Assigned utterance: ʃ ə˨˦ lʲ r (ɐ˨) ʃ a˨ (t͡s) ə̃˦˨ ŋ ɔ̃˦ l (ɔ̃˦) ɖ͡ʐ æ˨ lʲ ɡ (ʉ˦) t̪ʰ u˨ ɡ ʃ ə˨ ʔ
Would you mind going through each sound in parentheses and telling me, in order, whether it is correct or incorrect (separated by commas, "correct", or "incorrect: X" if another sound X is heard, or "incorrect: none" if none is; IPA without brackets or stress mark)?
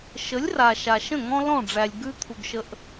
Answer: incorrect: a˨, incorrect: ʃ, incorrect: ɔ̃˦˨, correct